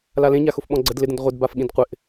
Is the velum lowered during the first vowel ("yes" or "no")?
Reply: no